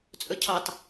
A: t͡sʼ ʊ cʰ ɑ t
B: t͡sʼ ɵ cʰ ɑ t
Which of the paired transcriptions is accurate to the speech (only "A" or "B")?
B